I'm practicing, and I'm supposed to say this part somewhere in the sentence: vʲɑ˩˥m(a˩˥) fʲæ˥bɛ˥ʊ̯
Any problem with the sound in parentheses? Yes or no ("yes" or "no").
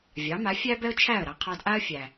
no